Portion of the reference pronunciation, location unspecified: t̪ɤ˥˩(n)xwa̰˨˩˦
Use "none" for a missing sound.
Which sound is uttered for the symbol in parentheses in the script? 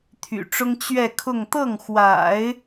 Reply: ŋ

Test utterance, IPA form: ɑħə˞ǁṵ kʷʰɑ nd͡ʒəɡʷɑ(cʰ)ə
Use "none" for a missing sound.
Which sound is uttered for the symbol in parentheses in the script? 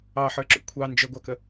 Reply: k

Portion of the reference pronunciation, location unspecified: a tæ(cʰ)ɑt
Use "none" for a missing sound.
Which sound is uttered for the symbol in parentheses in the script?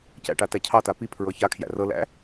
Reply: cʰ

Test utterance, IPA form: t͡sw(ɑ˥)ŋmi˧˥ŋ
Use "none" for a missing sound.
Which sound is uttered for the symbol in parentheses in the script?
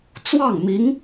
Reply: ɑ˥˩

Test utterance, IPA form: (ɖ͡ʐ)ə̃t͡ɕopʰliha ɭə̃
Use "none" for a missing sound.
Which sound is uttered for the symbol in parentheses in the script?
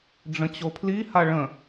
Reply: ɖ͡ʐ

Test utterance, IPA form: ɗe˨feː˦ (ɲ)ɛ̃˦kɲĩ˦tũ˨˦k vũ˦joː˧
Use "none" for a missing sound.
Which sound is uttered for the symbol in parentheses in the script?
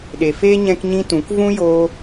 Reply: ɲ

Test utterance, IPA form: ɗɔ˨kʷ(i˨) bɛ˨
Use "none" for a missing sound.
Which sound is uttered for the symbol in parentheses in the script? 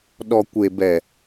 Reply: e˨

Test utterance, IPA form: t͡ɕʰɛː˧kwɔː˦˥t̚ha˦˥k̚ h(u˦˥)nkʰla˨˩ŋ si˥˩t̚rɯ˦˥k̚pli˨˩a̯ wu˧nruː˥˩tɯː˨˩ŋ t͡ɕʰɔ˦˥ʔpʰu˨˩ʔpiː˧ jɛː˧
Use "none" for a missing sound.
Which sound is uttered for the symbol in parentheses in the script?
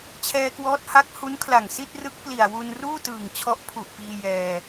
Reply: u˦˥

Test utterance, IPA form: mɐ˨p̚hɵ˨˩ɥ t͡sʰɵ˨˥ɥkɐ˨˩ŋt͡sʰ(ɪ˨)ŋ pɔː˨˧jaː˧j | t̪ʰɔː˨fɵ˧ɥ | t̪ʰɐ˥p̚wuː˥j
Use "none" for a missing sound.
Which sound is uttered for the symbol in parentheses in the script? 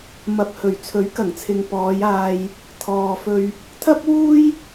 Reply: ɪ˨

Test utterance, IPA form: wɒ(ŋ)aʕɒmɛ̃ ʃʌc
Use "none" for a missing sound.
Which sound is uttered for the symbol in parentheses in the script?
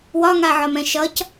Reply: ŋ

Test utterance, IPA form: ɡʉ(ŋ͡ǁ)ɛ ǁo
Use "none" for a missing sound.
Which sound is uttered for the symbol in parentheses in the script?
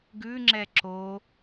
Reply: ŋ͡ǁ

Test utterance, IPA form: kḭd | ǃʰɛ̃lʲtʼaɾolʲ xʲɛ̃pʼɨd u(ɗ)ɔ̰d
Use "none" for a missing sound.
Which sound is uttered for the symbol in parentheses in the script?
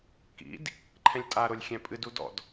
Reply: d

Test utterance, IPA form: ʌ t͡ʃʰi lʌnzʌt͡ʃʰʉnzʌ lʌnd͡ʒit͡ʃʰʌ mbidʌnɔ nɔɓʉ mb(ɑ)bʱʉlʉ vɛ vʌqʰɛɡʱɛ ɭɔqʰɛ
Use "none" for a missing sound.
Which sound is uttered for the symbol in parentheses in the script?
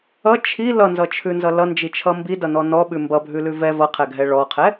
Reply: ʌ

